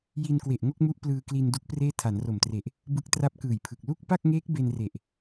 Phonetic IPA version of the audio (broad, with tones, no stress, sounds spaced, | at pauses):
j i˧ n k w e˨˩ ʔ ŋ o˥˩ k̚ m u˦˥ ʔ p l ɯː˧ k l i˧ n d u˦˥ k̚ p r eː˥˩ tʰ a˩˦ n r o˨˩ m t r e˨˩ ʔ | b ɯ˦˥ k̚ t r a˦˥ p̚ k ɯː˨˩ j pʰ ɯ˨˩ k̚ l u˥˩ k̚ p a˥˩ k̚ ŋ eː˦˥ k̚ b e˧ n r e˨˩ ʔ